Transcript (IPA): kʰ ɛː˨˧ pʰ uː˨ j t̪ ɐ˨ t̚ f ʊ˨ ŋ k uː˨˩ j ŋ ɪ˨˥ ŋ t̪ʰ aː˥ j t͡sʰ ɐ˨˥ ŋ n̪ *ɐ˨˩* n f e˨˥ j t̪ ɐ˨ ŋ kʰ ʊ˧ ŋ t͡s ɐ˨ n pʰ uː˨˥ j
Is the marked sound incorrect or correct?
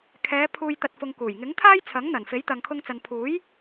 correct